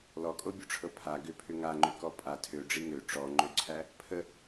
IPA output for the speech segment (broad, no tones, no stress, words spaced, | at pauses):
lɔkʼobʲoʈ͡ʂʰɤ pʰa ɡʏpʰʏ ŋaŋ͡ǃʏkɔ pʼa tʰøɖ͡ʐi ŋø ʈ͡ʂɔŋ͡ǃøǀʰæ | pʰə